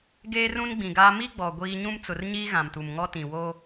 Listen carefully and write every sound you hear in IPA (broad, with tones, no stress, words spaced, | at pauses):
ɡeː˦rũ˦nɡ͡bĩ˨ɡaː˦ mi˦ɡ͡bɔ˨ ɡʷiː˦ ɲũ˦mt͡sʊ˨rɲiː˦ ɣã˨mtu˨mŋɔ˦tĩ˨ wo˦